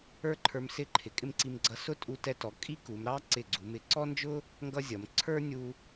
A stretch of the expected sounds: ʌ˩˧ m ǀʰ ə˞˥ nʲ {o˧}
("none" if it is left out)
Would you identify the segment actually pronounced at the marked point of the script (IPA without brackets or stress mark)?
u˧